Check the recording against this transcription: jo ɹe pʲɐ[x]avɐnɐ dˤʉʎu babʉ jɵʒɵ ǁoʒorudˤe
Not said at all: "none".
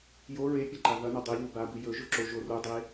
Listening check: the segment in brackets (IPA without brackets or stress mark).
ǃ